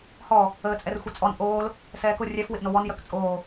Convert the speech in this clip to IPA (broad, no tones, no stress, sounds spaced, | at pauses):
h ɔ | əː t͡sʼ ɛ r xʷ ɛ t͡sʼ ɔ n ʔ oː l | s ɛː k ʊ rʲ ɛ f w ɪ ʔ n o w ɔ n j œ k t͡sʼ oː